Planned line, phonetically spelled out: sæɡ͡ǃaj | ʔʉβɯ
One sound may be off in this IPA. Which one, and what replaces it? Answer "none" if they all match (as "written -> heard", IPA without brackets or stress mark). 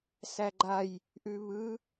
none